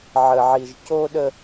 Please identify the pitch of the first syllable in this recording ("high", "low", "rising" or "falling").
low